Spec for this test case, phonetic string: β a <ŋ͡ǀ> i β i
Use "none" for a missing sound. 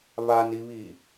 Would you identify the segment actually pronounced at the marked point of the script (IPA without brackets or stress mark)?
n